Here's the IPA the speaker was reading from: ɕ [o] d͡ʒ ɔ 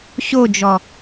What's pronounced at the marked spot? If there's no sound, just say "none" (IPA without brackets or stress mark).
o